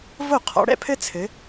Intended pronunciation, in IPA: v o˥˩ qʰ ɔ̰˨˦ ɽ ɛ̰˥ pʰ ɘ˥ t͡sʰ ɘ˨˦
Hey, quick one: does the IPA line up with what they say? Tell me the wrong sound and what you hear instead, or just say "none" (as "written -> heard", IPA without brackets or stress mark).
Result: none